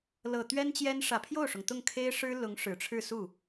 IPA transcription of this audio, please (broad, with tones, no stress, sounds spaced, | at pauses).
l ɤ˨˩ t̪ ɥ ɛ˥ n t͡ɕ j ɛ˥ n ʂ ä˨˩ pʰ j o˥˩ ʊ̯ ʂ ʊ˩ ŋ t̪ ʊ˥˩ ŋ kʰ e˥ ɪ̯ ʂ ɻ̩˥ l ʊ˧˥ ŋ ʂ ɻ̩˨˩ ʈ͡ʂʰ ɻ̩˥˧ s u˥˩